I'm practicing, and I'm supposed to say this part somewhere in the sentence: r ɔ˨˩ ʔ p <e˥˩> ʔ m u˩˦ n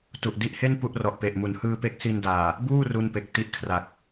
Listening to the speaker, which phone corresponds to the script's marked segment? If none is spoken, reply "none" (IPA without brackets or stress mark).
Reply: e˨˩